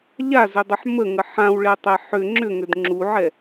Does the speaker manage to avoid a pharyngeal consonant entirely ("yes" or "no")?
no